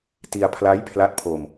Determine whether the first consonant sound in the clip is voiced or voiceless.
voiceless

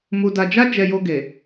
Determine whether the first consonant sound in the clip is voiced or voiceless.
voiced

